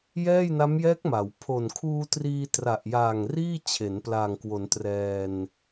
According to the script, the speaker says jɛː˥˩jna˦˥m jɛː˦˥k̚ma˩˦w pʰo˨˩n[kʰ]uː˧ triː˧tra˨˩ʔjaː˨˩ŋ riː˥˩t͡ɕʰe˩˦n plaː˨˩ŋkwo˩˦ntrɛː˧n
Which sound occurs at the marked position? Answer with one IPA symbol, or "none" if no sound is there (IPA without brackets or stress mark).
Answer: kʰ